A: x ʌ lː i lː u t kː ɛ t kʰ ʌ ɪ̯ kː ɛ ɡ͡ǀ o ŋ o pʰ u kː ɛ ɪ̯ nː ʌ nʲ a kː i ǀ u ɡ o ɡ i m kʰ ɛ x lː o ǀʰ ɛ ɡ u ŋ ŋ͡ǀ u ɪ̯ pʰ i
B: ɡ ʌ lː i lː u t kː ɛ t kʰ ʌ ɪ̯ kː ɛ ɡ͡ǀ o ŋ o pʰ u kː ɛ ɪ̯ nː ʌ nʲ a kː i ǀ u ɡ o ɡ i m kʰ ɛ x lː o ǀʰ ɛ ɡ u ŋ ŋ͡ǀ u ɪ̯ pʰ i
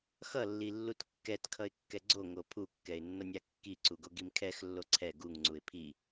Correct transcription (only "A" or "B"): A